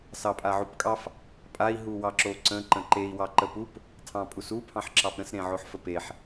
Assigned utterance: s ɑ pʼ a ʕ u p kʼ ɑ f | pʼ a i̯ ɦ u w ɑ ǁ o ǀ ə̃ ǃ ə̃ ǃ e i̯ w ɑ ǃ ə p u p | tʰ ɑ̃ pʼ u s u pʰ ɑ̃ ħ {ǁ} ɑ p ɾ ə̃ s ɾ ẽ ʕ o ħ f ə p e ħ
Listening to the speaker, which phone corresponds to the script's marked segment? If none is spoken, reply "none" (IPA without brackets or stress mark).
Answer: ǁ